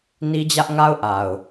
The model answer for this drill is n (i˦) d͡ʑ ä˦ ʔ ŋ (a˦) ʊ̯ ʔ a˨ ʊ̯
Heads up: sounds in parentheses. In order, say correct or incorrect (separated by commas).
correct, correct